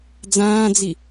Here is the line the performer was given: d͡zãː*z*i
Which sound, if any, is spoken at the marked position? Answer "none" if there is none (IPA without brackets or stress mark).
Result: d͡z